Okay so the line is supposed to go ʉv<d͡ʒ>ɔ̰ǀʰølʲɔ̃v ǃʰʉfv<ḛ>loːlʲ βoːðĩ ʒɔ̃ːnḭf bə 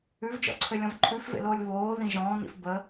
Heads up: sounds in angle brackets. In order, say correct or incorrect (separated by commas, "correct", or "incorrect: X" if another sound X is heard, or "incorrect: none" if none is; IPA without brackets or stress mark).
correct, correct